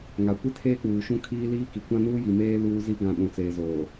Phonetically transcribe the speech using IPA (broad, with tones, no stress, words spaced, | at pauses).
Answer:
ŋa˨ kʷi˦tʰeː˦k͡puː˨ʃũ˦ kʰiː˦liː˦ki˨ kʷã˦nuː˦ji˨meː˦ luː˦zi˦ ɡã˦˨ ɗũ˨t͡seː˨ zoː˨